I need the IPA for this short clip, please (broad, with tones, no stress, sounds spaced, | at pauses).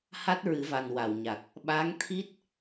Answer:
h a˦˥ t̚ ɹ ɨ˨˩˦ v a˨˩ n w a˨˩˨ w ɲ a˨˩ k̚ | ɓ a˧˥ ŋ t̪ʰ i˦˥ t̚